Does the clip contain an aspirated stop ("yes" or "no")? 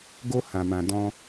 no